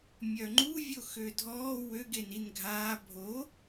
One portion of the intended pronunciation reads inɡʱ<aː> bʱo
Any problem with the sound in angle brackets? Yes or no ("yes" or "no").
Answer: no